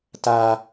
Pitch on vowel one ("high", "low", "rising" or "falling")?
high